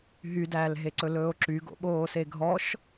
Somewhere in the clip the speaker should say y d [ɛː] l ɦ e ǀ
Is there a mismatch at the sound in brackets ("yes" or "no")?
yes